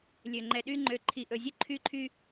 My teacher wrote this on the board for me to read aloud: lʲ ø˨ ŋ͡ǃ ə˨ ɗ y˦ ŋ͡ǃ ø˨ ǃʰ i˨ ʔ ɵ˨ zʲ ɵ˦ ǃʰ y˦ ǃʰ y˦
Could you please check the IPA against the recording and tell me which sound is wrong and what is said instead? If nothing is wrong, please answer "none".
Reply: ə˨ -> ɛ˨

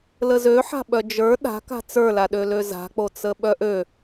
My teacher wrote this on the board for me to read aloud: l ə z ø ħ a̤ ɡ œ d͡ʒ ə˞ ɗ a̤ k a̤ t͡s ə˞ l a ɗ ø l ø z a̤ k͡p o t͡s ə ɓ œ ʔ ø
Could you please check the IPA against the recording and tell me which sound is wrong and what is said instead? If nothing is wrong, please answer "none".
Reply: ɡ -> ɓ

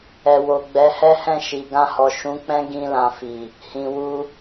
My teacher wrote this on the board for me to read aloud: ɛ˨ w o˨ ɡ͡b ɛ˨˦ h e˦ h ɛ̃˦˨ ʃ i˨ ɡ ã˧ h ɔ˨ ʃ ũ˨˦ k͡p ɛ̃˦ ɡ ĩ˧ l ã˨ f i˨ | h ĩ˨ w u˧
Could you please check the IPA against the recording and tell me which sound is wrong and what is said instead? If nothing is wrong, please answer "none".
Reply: e˦ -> ɛ˦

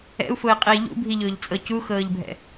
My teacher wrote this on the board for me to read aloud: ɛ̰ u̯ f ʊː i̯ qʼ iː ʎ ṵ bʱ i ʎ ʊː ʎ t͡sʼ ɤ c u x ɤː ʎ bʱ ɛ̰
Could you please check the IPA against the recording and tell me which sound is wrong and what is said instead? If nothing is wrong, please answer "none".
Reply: none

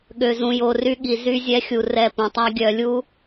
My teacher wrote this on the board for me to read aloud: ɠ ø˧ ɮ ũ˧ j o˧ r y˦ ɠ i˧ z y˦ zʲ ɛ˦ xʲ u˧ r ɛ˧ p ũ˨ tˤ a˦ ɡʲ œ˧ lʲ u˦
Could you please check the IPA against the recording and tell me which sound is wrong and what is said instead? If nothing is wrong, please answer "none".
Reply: ɮ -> z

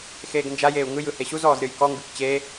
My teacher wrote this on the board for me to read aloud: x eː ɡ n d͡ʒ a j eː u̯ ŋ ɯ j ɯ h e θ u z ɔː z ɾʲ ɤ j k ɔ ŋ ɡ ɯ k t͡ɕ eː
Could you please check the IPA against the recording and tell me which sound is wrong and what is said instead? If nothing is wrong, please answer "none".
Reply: θ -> ɕ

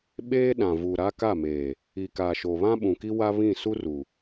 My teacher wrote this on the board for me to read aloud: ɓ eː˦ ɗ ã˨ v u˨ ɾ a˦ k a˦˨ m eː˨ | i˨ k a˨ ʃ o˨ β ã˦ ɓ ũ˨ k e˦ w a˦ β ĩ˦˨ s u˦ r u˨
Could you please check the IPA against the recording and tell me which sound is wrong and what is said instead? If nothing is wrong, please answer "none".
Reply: e˦ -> i˦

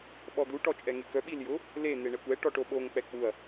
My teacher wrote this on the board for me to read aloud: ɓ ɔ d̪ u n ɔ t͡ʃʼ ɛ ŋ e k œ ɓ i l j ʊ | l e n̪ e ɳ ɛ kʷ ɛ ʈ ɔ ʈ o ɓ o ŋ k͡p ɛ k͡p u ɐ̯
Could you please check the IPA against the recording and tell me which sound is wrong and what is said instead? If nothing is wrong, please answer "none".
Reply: n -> ʈ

